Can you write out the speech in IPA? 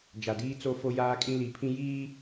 d͡ʒ a˨ d iː˦ t͡s o˦ f o˦ j aː˦ kʼ ĩ˦ l i˨˦ pʰ ĩ˦ j iː˦

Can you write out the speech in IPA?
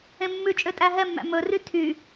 ẽ mː ʉ t͡ʃʼ ø tʼ æ ɦ ɛ mː æ̰ m ɵ r y tʰ y

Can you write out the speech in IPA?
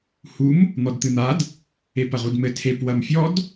h u m | n̪ ɔ d t̪ ɨ n̪ a d | e p ɐ ʁ u d m ɘ tʰ e p w ɐ m fʲ ɔ d

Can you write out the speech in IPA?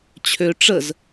t͡ɕʰ ø ʈ͡ʂ ə z

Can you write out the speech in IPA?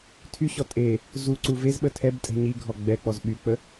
tʰ y ɕ ɔ tʼ e | z u ǀ u v e z ɓ ə tʰ ɛ b tʼ ɛ̤ ɲ i ɡʱ ɔ ɡ͡b ɛ k͡p ɔ z ɓ y k͡p ə

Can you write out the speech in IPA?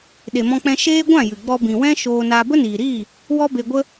ɗ e˨ m ɔ̃˧ k͡p ɛ̃˧ ʃ eː˦ ɡʷ ã˦˨ j ɨ˨ ɡ͡b ɔ˧ b ĩ˨ w ɛ̃˦ ʃ oː˧ n a˧ b ə˦ n iː˨ ɾ iː˦˨ | w ɔ˦ b e˧ ɡʷ ə˦

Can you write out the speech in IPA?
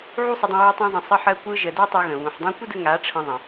ʕ u˦ sˤ ə˧ dˤ ə̃˧ w ə˧ j tˤ ã˧ zˤ ə̃˨ sˤ ə˧ ħ ɜ˧ kʷ ɯ˧ ʒ ə˨ d ɜ˦ tˤ u˧ ɣ ə̃˨ β ũ˨ ħ dˤ ã˦ kʷ ə˦ d ə˧ ŋ a˨˦ ʈ͡ʂʰ ə̃˧ ðˤ ə̃˨

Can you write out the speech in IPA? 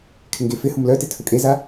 kʰ ɪ ŋ ɡ e f ɪ h ʊ m l œ t ɪ tʰ ʊ kʼ e z a

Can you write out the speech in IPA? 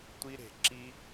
tʷ i˧ ɾ e̤˨ ǁ i˦

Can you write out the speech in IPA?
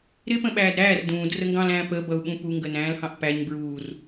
ɾ ɪ p ə̃ ɓ æː d ɾ æː r d ũː d r ə ŋ ɡ ɑ̃ l æ̃ː p ə b ʌ u̯ ɓ ũ p u ŋ ɡ ə n æ̃ː l h ɑ̃ ʔ p æ ɲ b ɹ uː r

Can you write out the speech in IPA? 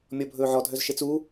mʲ ɔ bʱ ɵː ʕ ɔ dʱ œ z ʃ e t͡s u

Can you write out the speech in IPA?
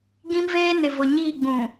ɡ ĩ˦ m v eː˦ n ɪ˨ v ʊ˨ ɲ iː˦˨ ɡ͡b ũ˨

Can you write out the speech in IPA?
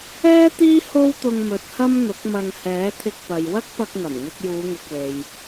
ɛː˥ t̪ iː˥ h o˥ w t̪ ʊ˧ ŋ m ɵ˨ t̚ h ɐ˥ m n̪ ʊ˨˥ k̚ m ɐ˧ ŋ h ɛː˨˥ t̪ʰ ɪ˧ k̚ p ɐ˨ j w ɐ˥ k̚ p ɐ˧ k̚ ŋ ɐ˨˩ m ŋ ɪ˧ k̚ j uː˨˧ ŋ ʊ˨ k̚ w e˨ j

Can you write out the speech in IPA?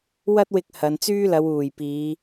w ɐ˥ t̚ w ɪ˧ k̚ h ɐ˨˧ n t͡s yː˥ l ɐ˨˧ w uː˨˩ j p iː˨˧

